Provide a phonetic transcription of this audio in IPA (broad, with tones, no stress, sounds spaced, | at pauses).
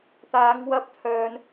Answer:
t̪ aː˨˧ ŋ w ɐ˧ p̚ t̪ʰ œː˨ n